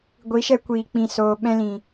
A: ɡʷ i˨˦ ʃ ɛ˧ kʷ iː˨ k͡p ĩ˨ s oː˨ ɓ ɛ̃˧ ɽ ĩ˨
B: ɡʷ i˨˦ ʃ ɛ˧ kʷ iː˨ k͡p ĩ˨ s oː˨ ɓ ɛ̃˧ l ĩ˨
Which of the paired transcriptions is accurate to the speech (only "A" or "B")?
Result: B